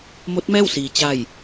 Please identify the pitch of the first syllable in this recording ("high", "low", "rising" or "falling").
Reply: rising